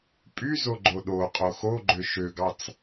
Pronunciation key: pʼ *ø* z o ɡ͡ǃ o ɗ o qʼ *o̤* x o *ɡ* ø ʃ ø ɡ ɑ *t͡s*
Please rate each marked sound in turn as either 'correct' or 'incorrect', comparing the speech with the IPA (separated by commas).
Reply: incorrect, incorrect, incorrect, correct